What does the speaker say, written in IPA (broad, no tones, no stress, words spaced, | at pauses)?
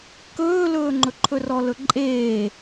kɵːlɵːŋ͡ǃɵǃʰɵ rɔlɵǃʼeː